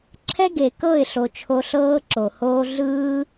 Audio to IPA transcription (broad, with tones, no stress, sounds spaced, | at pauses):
ǁʰ ɛ˦ ɡ e˨ k ɤ˦˨ ɪ̯ ɬ o˨ t͡ʃʰ o˧ ɬ ɤː˦ ǁ o˨ h oː˦ ɮ ɯː˦